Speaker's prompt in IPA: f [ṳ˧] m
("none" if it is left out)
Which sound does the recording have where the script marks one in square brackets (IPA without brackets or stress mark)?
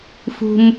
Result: ṳ˧